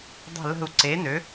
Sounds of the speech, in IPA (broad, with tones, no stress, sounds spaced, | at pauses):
dˤ ə̤˥˧ l ə̤˥˧ u̯ ǀ e˧˥ n ø˧˥